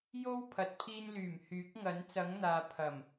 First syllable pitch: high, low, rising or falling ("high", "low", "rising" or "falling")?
high